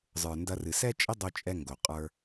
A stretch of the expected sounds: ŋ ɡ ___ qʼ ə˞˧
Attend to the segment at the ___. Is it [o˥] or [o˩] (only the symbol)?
o˩